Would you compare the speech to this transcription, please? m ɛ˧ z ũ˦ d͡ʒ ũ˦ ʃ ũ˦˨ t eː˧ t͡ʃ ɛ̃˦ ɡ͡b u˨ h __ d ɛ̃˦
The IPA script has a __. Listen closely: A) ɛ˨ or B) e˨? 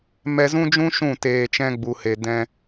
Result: B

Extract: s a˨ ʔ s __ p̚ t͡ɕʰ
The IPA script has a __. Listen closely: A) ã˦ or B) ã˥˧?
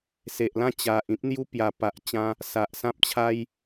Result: A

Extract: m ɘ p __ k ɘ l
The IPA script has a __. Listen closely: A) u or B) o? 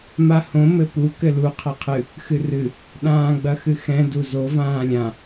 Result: A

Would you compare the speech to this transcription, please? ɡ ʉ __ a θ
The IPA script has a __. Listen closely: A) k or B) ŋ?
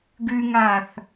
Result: B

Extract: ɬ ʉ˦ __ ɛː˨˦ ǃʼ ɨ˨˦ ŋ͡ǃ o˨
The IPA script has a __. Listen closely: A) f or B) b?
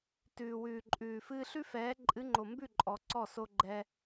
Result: A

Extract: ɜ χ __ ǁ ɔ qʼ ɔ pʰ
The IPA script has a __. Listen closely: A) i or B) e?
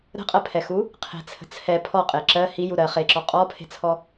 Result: B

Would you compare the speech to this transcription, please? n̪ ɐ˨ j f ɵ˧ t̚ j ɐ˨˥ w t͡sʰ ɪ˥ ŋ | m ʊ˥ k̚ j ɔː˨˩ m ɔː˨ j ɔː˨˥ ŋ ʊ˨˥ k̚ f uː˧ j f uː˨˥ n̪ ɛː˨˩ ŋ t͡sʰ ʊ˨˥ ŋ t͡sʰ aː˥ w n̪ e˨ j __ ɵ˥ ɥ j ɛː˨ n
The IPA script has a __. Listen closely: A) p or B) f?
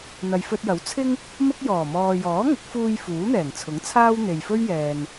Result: B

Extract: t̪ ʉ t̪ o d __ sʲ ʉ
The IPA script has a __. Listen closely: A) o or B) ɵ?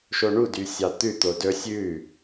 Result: B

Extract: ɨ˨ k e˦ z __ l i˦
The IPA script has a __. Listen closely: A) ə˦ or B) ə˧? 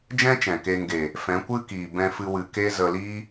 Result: B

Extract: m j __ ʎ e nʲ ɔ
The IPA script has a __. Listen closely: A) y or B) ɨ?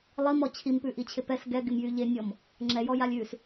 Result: A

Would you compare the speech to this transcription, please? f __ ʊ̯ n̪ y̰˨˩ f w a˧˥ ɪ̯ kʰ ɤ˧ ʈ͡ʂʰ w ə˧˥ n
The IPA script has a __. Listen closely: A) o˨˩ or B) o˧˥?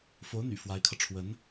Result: B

